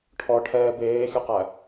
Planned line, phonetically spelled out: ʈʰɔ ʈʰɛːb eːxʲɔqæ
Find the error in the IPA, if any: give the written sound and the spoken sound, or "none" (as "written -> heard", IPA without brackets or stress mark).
none